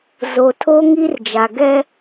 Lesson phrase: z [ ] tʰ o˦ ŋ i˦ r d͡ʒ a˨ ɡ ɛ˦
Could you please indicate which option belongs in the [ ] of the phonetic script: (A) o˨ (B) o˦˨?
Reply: A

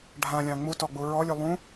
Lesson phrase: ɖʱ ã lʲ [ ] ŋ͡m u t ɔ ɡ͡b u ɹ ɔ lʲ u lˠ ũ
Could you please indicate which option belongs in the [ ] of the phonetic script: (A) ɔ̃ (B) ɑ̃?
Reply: B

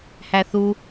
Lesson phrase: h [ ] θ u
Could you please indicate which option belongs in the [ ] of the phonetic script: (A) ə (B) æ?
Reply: B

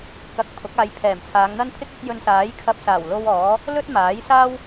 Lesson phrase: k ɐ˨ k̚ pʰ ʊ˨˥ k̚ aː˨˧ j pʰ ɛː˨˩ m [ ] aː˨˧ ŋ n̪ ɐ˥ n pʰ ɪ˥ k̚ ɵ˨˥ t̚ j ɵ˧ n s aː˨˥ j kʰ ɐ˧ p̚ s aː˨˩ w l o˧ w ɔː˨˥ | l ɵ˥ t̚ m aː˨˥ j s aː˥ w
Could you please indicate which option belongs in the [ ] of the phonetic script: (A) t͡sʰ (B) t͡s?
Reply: A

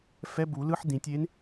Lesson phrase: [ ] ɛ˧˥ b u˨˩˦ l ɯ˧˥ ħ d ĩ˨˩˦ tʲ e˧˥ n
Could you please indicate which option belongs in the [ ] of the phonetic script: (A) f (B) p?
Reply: A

